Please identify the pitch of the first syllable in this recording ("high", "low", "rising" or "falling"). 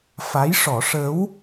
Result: rising